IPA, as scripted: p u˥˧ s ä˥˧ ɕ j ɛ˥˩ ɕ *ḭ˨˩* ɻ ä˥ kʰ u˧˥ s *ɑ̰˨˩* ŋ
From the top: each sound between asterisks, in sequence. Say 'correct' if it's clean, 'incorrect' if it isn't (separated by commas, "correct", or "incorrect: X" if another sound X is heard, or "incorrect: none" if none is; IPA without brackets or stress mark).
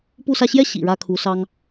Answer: correct, incorrect: ɑ˥